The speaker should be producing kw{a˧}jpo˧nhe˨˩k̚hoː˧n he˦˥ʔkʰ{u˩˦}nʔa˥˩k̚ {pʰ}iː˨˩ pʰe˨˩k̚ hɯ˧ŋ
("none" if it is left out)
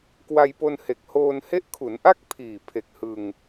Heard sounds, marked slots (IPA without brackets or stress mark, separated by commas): a˧, u˩˦, pʰ